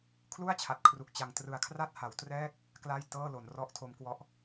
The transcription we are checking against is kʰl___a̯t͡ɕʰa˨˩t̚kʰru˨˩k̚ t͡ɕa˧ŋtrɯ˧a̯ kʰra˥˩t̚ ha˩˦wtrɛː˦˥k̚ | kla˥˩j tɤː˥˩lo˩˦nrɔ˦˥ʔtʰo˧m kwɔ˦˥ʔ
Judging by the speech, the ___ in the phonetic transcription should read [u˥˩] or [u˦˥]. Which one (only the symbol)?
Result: u˥˩